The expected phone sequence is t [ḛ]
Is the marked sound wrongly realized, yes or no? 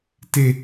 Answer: yes